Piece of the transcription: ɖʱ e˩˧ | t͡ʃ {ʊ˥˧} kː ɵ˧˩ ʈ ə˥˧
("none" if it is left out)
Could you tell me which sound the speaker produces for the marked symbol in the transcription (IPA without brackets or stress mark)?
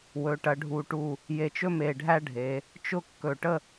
ʊ˥˧